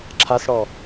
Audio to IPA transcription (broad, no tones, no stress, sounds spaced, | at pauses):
ǁʰ a s ɽ ɔ